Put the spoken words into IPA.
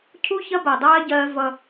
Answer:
cʰ u˦ ç ɐ˦ b ɜ˨ dˤ ɜː˦ ɟ ɜː˦ v ʌ˦

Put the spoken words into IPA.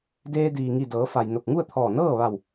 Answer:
d eː˧ d iː˩ ŋ i˧˩ d ɤː˩˧ f a˩ j n o˧˩ k̚ ŋ u˥˨ ə̯ t̪ʰ ɔː˧˩ n ɤː˥˨ ʋ a˧˩ w

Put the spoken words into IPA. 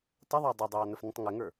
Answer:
tˤ ɪ ðˤ ɑ dˤ ɪ dˤ ɑː n ə f n ə̃ tˤ ŋ ɪ ŋ ə˞

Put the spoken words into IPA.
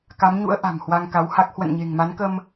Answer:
k a˨˦ m ɲ ṵ˧˥ ə̯ ʔ a̤˨˩ m h w a˧ ŋ k a˨˦ w h a˦˥ k̚ h w ə̰˧˨ n ɲ e̤˨˩ ŋ m a˨˦ n k ə˧ m

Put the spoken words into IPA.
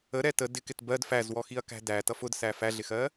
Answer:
ə ɾ ɛ t ə d ɪ k ɪ t b ɜ d f æ z w ɔ x i ɐ̯ k æ̤ d æ t ʌ f ʊ d s æ f æ ɮ ɪ x ɜ

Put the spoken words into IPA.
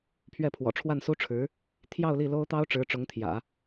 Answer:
pʰ ɥ ɛ˥˩ pʰ w ɔ̰˨˩ ʈ͡ʂʰ w a˥˩ n s u˥ ʈ͡ʂʰ ɻ̩˧˥ | t̪ʰ j ɑ˥˧ ʊ̯ l i˥˩ l o˥ ʊ̯ t̪ ɑ˥ ʊ̯ ʈ͡ʂ ɻ̩˧˥ ʈ͡ʂ ʊ˧˥ ŋ t̪ʰ j ä̰˨˩˦

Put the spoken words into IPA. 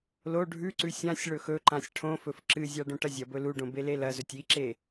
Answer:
l o ɖʱ ʉ ǀ ʉ sʲ ã sʲ ɭ ɵ x ɵ ǃ ã sʲ ʈʰ õ f ɵ f ǁ ɨ zʲ a ɖ õ ʈ ɐ zʲ ɐ b ɵ l u ɖ õ b e l e l ɐ z ɵ tʲ i ǁ e

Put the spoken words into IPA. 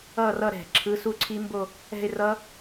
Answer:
ʌ˥˧ r ʌ˥˧ ɾ ɛ̤˧˩˧ ǁʰ ɯ˧˥˧ s u˥˧ ǀʰ i˦˥ m b o˥˧ | ɛ̤˥˧ ɪ̯ r ʌ˦˥

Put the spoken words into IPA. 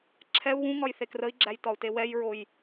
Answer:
ǁʰ ɛ u̯ w ũ ŋ ɒ j θ e k r ə i̯ ɡ͡ǁ æ j t ɒ u̯ t e w ɛ j ɹ o j

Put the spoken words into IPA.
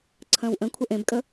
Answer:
ǀʰ ə̃ː w ʔ ə̃ kʷʰ ə ʔ ẽ b kʼ ə

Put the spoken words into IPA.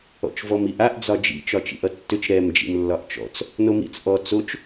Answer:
ɔ̰ t͡ʃ v ɔ m i ʔ a ʔ d͡z ɒ d͡ʒ ḭ t͡ʃ ɒ t͡ʃ ḭ ʔ ʌ tː ʏ t͡ʃ ɾ ɛ m d͡ʒ ḭ m lː ɒ ʔ t͡ʃ ɔ̰ t͡s | n o m ḭ t͡s ʔ ɔ t͡s o t͡ʃ

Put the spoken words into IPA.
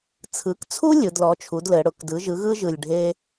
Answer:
t͡sʰ ɯ˩˥ k t͡sʰ u˥ lʲ ɯ˩˧ d l ɔ˩˥ t͡ʃʰ u˩˥ d l ɘ˩˧ ɽ ʊ˩˧ k d ɯ˩˥ ʒ ɯ˩˥ ɣ ɯ˥ ʒ ɯ˨˩ lʲ ɖʱ e˥

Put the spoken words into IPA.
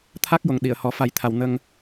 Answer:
t̪ʰ a˦˥ k̚ j o˨˩ ŋ ɗ i˨˩˨ ə̯ h ɔ˨˩˦ f a˨˩˦ j t̪ʰ a˨˩ w n ə˧ ŋ

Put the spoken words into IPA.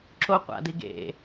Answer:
ǁ o qʷ a̰ d i ɡ ḛ

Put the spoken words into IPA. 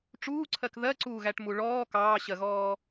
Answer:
ʈ͡ʂ uː ǀʰ ɜ k ð ɜ ǀ uː ɣ æ ʈ m u ɭ ɔː k ɑː ɕ ɜ ɣ ɔː

